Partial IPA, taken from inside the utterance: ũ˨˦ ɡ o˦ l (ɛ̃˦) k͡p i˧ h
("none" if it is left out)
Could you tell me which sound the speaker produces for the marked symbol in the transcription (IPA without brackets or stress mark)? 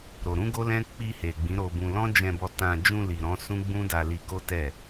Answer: ɛ̃˦